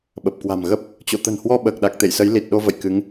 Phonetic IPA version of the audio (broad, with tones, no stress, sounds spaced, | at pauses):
ɓ ə˨˩ p̚ k w a̤˨˩ m ɣ ə˦˥ p̚ | t͡ɕ o̰˧˨ t̪ ə̤˨˩ n h w ɔ˧ ɓ əː˨˩ k̚ ɗ a˨˩ k̚ t̪ ḛ˧˨ j s ə˨˦ j l i˨˩ t̚ ɗ o˧ v ə̰˧˨ j k ɨ˨˦ ŋ